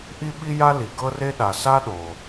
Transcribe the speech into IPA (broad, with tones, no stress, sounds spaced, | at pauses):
ʔ i˥ ɓ i˥ j a˥ l i˩ ɡ ɤ˥ r e˥ ɗ a˩ s a˥ ɗ o˩